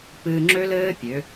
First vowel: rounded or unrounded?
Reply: unrounded